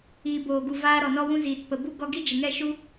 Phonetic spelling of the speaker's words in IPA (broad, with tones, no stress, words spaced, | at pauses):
iː˨boː˨ɡu˨ vaː˧ ɾɔ˨nɔ˧wũ˧ ziː˨tpə˨bu˦ ɡɔ˧ɡi˦ d͡ʒə˨ŋɛ˦˨ʃu˦